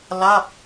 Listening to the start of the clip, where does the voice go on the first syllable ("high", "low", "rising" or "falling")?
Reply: falling